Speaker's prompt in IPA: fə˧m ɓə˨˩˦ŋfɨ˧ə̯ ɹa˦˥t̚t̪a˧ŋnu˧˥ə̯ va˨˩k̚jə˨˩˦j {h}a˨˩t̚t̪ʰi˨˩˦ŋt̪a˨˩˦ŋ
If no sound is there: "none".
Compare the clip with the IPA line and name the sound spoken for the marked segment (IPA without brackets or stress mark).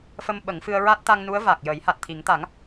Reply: h